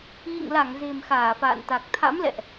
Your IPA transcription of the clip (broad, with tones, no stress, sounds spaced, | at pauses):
ɣ ḭ˧˨ ŋ l a˧˩ ŋ z e̤˨˩ m x aː˧˩ f a̰ː˧˨ n t̪ a˨˩ k̚ t̪ʰ a̰˧˥ m l ɛ̰˧˨ ʔ